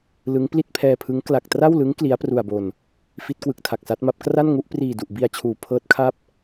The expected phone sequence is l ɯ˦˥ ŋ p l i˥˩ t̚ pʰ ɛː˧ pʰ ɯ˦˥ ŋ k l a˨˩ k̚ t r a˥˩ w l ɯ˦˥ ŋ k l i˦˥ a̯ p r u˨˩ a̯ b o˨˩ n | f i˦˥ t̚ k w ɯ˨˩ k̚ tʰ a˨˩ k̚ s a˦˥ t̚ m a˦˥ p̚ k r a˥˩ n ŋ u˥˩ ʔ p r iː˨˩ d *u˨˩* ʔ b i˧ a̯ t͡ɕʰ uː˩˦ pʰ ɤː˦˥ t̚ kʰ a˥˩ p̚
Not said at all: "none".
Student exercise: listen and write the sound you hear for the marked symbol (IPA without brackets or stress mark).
u˨˩